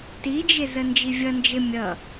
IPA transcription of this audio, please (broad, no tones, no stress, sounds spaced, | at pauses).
t i d͡ʒ ɪ z ə n d͡ʒ i vʲ ʌ n d͡ʒ ɪ mʲ ʌ